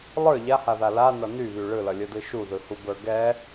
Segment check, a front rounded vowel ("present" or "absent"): present